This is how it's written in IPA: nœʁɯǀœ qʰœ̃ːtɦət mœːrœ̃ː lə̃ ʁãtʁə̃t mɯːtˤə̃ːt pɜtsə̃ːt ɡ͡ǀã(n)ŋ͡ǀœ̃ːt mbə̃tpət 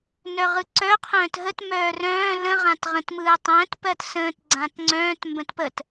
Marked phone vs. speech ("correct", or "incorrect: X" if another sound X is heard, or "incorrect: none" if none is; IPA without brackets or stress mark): incorrect: t